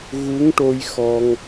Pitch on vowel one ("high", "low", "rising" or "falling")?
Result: rising